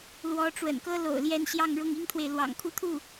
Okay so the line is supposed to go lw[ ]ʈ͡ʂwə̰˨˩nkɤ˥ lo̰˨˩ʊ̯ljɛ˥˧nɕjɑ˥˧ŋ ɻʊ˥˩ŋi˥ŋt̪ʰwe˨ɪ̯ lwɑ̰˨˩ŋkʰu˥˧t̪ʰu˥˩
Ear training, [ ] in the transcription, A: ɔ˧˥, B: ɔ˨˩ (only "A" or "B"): A